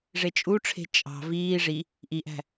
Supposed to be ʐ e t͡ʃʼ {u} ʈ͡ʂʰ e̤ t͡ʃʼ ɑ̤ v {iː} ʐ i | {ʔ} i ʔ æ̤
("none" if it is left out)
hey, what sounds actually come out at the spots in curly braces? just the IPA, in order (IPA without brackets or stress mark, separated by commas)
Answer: u, iː, ʔ